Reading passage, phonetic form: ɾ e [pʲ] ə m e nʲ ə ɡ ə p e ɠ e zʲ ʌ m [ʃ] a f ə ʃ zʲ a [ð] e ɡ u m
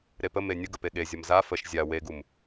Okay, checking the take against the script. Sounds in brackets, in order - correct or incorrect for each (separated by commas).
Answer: incorrect, incorrect, incorrect